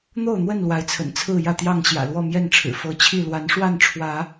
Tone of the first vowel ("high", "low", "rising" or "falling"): falling